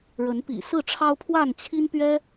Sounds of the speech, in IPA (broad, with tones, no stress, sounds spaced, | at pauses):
ɻ ə˨˦ n p ḭ˨˩ s ɹ̩˥˨ ʈ͡ʂʰ ɑ˦ ʊ̯ pʰ w a˥˨ n t͡ɕʰ i˦ n p ɥ ɛ˦